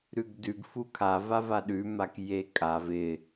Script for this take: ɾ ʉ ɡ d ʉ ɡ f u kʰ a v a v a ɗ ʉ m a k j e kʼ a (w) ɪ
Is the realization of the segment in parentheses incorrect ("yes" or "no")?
yes